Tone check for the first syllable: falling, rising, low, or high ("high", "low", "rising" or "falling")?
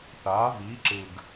rising